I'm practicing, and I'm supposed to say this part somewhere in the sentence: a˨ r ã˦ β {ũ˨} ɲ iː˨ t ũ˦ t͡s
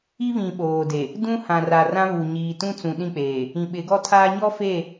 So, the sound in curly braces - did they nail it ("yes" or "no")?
no